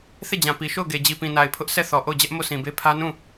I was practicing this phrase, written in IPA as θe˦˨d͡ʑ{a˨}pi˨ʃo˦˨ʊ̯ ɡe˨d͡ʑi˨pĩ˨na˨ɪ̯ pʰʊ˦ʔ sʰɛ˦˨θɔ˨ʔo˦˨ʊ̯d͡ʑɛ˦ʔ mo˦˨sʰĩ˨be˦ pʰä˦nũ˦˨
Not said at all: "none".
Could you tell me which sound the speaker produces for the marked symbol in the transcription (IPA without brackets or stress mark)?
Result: ã˨